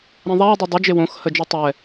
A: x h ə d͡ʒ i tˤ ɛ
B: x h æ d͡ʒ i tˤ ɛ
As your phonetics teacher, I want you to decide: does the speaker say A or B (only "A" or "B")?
A